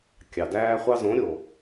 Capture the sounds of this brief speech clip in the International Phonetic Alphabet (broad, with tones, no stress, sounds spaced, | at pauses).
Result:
kʲ ɑ˨ d æː˧ χʷ ɑ˧ z õ˨˦ ɾʲ o˨